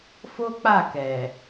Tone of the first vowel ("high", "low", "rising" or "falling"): high